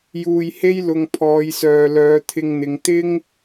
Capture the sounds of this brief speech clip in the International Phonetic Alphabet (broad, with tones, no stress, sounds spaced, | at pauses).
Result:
j uː˧ j h e˥ j l ʊ˧ ŋ pʰ ɔː˨˧ j s œː˨ l œː˨˧ t̪ʰ ɪ˧ ŋ n̪ ɪ˨˧ ŋ t̪ ɪ˥ ŋ